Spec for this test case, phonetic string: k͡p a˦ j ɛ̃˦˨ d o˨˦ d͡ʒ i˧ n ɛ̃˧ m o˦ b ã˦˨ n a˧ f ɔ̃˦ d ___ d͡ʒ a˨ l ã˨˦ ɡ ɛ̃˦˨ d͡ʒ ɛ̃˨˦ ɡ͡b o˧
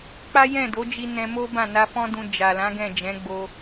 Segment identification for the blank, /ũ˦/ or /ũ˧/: ũ˧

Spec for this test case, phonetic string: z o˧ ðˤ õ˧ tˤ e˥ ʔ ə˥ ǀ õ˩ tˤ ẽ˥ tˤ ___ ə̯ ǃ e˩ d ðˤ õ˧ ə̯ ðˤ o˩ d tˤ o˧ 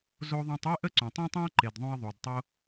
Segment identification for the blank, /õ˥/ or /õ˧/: õ˥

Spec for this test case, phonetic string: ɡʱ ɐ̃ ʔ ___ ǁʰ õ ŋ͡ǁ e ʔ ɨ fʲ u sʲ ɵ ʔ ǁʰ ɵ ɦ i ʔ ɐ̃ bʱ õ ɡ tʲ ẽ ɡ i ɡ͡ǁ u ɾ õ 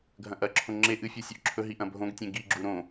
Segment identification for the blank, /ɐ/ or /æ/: ɐ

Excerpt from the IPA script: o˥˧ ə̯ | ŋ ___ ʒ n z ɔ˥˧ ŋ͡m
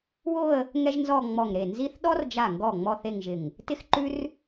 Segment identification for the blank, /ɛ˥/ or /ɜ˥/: ɛ˥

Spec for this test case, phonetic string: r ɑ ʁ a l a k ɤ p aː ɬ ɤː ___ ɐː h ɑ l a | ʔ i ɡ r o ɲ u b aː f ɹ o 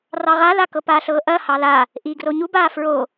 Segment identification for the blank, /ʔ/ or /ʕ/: ʔ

